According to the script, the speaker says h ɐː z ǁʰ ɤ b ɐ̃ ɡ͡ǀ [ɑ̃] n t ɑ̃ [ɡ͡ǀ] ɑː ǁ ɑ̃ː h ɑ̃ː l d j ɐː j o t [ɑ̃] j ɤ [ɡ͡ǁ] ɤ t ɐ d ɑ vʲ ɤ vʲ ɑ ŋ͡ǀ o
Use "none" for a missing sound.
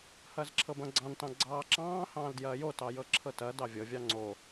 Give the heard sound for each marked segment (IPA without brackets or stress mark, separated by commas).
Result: ɑ̃, ɡ͡ǀ, ɑ, ǁʰ